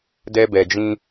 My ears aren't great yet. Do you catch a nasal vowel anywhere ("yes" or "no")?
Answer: yes